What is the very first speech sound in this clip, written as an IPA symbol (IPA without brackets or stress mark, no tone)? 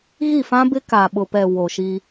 ɣ